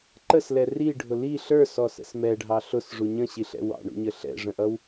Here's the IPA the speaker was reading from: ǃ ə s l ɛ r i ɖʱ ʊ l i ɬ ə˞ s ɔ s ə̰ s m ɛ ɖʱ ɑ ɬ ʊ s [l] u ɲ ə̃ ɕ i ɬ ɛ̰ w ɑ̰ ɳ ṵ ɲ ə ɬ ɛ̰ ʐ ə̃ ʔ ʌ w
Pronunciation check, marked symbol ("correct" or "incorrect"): incorrect